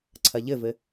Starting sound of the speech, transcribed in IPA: ǀʰ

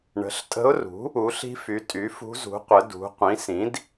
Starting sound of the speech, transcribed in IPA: ɳ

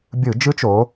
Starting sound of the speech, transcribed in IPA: bʲ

